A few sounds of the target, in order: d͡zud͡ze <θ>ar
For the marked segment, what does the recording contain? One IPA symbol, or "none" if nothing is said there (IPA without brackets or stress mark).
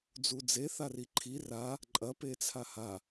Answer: θ